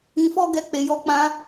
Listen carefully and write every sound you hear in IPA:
ĩ˧fɔ˦ ɡɛ˧k͡pe˨jɔ˧k͡pã˧

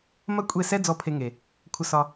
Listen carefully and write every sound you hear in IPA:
mɐ˦kʷʼe˦˨sɛ˦ d͡zɔ˦˨pʰe˧ŋe˨ | kʷʰə˧sɒ˧

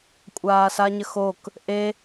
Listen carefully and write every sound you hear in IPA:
kʷʼaːsaɲəxok | ʔe

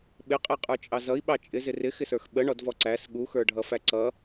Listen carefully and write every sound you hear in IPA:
ɓɪqʼɛqʼə˞t͡ʃʼɑ zʌi̯ɓɑ t͡ʃʼɪzɪ rɪxɪsə˞x ɓəɳɔdvɔ ǀæs ɠuxə˞ɖʱʌfæ ǀʌ

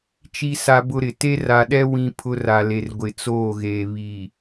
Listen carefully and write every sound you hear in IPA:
t͡ʃi˦sa˦bʊ˦ɾɪ˨ te˦ra˨ɗɛ˦ wĩ˦pʰʊ˦ ra˨le˨r ɡʷɪ˨t͡soː˦˨ɣeː˨ βi˨

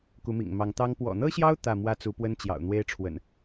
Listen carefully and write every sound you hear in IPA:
ku˨˦mḭ˨˩ŋmɑ˨˦ŋt̪ɑ˦ŋ pwɔ̰˨˩n̪ɤ˦ɕjɑ˦ʊ̯ t̪ä˥˨ mwä˦t͡su˨˦pwə˦nt͡ɕjɑ̰˨˩ʊ̯ n̪we˦ɪ̯ʈ͡ʂʰwə̰˨˩n

